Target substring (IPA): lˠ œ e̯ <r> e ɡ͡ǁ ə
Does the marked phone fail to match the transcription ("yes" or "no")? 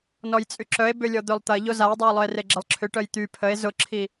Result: no